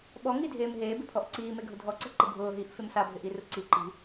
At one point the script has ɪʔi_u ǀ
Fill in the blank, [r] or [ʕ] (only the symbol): r